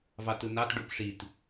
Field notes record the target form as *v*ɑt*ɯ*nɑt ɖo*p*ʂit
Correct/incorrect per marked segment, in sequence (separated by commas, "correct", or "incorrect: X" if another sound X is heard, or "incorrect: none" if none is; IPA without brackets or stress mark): correct, correct, correct